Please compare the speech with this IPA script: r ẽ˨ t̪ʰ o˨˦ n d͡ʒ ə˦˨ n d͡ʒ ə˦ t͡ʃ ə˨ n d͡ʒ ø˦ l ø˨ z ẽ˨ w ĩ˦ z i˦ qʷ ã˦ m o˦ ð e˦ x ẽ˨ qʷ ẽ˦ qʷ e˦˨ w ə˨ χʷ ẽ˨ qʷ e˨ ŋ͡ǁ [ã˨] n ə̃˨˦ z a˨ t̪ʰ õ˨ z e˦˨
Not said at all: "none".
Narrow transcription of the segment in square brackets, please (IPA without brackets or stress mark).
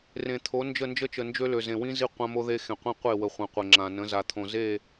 ã˨